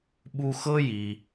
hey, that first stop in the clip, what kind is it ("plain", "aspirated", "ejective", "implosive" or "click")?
implosive